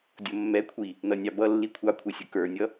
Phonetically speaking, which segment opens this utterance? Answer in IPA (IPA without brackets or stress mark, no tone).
dʲ